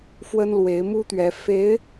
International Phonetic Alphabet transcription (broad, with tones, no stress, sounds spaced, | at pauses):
f w ə˥ n l w e˧˥ ɪ̯ m u˥ t̪ ɥ ɛ˧˥ f e˧˥ ɪ̯